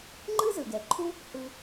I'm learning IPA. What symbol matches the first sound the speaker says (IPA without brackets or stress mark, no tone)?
ŋ͡ǃ